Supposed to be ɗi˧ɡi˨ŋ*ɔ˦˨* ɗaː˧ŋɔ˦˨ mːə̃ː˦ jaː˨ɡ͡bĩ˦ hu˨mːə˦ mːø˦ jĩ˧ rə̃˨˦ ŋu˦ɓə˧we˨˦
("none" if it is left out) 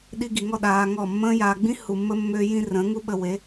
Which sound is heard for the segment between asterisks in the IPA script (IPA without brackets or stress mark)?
ɔ˦˨